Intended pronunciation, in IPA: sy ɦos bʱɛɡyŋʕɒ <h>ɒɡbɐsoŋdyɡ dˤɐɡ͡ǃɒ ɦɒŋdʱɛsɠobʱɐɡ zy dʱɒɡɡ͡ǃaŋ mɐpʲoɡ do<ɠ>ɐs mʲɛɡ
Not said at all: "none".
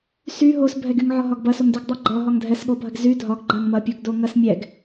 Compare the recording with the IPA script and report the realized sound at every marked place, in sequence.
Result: ɦ, ŋ

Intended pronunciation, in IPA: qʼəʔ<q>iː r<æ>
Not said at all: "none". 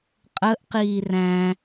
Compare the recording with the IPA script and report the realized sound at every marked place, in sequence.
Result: q, æ̃

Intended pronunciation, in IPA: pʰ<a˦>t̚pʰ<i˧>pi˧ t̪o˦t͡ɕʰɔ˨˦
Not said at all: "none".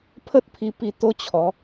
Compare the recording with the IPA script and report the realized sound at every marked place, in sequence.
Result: ə˦, i˧

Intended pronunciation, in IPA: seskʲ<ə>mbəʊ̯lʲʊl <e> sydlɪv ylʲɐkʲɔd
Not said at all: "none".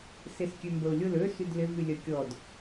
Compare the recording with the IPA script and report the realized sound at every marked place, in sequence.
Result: ø, ø

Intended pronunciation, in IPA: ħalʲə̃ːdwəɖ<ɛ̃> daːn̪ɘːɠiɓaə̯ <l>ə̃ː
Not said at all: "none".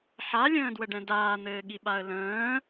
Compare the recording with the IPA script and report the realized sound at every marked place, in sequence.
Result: ɛ̃, l

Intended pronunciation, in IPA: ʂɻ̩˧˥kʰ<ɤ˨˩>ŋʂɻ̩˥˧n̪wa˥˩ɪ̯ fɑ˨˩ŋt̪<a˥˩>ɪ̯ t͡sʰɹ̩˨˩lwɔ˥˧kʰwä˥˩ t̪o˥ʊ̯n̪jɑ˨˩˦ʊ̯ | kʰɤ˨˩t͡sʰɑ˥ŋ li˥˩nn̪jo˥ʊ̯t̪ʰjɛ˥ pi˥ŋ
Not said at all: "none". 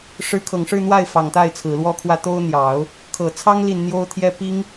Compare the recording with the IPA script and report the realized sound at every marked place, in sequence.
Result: ɤ˨˩, a˥˩

